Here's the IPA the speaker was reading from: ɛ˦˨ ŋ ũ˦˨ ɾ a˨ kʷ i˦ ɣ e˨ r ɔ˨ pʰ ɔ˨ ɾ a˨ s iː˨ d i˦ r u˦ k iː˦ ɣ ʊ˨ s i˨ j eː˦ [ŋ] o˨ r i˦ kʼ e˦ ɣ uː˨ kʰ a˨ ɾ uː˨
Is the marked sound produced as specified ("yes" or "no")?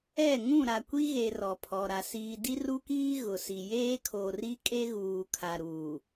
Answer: no